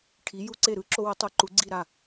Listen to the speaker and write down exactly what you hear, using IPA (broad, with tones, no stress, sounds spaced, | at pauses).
ʈʰ i˩˥ j u˦ ǀ e˥˩ ɾ ɯ˦ ǁ o˦ w e˩˥ tˤ ɯ˩˥ ǃ u˩˥ ɡ͡ǀ i˥˩ ɾ a˥˩